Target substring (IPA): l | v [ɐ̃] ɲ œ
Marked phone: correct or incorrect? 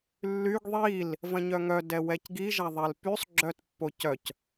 correct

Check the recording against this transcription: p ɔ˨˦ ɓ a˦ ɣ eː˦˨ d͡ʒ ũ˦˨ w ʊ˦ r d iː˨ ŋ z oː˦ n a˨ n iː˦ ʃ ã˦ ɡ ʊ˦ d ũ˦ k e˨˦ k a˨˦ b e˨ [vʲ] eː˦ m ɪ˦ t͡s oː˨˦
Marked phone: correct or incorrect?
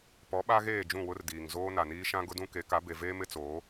incorrect: v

